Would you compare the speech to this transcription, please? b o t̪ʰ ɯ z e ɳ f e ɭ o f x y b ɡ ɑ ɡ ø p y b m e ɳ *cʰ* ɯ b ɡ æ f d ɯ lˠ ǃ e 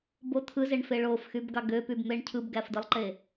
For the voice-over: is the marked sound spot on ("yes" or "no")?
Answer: yes